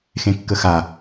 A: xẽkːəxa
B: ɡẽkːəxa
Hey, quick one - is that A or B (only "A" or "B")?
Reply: A